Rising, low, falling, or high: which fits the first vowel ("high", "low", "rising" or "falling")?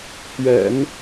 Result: low